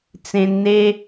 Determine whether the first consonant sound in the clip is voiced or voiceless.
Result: voiceless